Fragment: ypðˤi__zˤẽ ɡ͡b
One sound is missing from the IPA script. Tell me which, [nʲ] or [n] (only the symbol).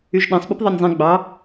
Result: nʲ